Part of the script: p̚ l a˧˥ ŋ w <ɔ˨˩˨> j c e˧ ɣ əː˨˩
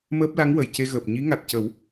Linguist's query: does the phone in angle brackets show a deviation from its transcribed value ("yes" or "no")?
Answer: yes